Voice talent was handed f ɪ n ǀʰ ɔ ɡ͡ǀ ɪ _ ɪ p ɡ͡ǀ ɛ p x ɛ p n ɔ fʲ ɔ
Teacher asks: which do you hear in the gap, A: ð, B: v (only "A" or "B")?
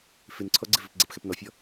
B